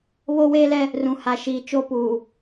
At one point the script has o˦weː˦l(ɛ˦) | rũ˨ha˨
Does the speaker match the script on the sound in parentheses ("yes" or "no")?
yes